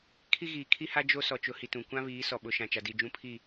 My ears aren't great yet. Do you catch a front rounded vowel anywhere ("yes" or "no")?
no